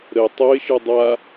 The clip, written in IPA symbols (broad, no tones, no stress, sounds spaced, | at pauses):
ɾ ə tˤ o ɪ̯ ʃ ɯ dˤ a